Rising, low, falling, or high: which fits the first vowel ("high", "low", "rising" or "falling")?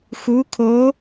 rising